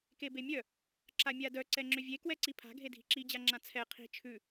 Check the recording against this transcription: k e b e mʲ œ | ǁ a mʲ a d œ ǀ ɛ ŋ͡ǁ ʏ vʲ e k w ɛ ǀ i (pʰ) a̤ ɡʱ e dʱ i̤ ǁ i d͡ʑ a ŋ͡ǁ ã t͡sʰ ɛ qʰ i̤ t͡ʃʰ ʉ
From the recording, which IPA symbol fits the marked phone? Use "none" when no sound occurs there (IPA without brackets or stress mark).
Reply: pʰ